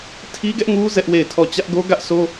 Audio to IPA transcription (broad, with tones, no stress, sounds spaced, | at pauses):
tʰ i˦ ɡ ɛ˦ ʔ ŋ u˦ z ɛ˦ ʔ w e˦˨ ɪ̯ tʰ ɔ˦˨ t͡ɕ ä˦ ʔ ɡ o˦ ɡ ä˦ ʔ s o˦